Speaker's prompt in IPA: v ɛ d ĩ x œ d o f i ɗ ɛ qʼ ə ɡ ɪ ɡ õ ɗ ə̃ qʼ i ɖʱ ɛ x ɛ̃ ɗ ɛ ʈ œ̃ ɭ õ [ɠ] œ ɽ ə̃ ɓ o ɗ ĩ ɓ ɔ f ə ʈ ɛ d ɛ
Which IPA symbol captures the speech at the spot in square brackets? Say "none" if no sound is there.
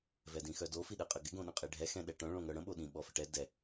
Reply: ŋ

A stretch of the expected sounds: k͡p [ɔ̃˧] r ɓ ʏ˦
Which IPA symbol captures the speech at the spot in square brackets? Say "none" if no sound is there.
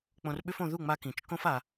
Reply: õ˧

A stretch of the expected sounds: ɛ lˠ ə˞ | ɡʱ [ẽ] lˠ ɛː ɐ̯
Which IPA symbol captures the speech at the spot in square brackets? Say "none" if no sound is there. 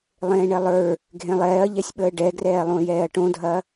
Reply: ẽ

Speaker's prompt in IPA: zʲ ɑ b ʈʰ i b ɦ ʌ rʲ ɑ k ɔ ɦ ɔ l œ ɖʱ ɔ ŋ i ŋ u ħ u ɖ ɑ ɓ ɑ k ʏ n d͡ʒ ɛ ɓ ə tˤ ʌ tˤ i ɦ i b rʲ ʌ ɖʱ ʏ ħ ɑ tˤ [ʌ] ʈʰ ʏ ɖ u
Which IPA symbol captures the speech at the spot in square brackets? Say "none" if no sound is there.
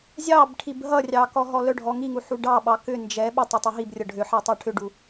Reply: ɑ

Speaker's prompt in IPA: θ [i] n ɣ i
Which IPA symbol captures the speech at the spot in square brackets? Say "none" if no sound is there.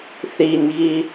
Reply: i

